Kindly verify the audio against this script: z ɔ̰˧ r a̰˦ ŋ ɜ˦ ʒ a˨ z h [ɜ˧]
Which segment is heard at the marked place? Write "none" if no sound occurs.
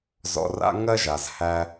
æ˧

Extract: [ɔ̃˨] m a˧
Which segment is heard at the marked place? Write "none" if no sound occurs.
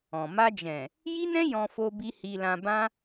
ɔ̃˨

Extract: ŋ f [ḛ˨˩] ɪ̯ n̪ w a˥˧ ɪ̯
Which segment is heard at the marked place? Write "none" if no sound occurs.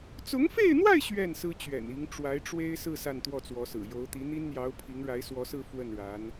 e˥˧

